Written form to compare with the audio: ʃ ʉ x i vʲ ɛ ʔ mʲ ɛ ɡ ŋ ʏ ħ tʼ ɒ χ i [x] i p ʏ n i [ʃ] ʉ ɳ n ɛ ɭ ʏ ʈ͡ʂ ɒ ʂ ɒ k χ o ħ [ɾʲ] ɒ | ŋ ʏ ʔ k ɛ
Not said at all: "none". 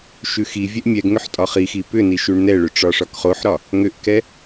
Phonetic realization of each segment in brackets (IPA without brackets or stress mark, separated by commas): x, ʃ, ɾ